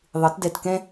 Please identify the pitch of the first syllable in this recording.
rising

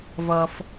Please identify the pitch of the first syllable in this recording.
low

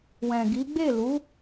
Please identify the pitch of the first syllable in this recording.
low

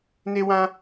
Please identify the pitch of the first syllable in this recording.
high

